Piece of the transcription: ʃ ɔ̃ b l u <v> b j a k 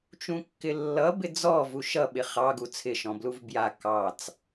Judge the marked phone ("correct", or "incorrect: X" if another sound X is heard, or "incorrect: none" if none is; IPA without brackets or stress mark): correct